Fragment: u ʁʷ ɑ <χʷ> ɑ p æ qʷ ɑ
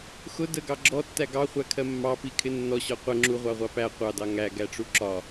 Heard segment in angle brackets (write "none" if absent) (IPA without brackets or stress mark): ʁʷ